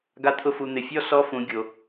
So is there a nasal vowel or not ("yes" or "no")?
yes